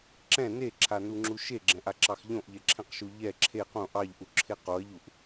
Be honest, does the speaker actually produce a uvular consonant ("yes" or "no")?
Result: yes